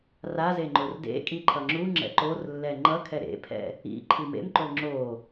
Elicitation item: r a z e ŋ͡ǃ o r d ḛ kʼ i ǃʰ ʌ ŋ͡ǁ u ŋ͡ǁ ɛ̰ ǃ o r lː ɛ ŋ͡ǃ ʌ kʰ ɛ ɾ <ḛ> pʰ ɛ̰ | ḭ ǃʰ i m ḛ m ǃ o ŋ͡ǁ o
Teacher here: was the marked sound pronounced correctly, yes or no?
yes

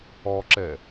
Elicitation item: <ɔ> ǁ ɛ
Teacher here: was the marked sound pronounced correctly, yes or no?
yes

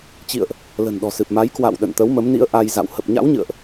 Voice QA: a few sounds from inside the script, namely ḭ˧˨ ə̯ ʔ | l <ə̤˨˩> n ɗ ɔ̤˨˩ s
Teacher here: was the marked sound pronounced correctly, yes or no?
yes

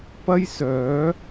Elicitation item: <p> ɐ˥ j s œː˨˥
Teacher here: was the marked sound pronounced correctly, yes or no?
yes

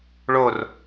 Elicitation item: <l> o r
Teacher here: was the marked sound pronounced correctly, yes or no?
no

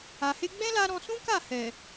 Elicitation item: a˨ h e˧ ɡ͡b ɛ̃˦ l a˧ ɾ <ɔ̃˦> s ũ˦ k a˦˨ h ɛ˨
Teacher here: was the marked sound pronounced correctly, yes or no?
no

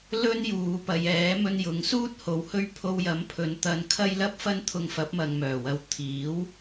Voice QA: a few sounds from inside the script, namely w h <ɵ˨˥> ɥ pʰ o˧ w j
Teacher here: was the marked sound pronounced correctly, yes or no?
no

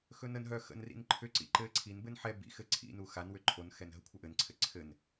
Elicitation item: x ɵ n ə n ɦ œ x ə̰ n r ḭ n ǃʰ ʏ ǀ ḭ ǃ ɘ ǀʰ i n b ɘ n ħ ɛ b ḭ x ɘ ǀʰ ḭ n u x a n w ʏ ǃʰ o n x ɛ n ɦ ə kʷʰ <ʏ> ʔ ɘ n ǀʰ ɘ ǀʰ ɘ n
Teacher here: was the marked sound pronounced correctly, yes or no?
no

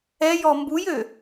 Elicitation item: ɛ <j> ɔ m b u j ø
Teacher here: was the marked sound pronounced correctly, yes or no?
yes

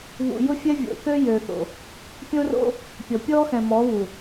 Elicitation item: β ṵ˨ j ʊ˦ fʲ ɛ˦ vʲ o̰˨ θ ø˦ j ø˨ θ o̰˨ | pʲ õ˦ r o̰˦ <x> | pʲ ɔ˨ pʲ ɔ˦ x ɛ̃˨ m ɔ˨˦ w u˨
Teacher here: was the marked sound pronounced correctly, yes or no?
no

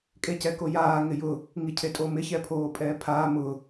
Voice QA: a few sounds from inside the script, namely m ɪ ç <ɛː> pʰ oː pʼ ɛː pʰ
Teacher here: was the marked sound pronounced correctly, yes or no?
no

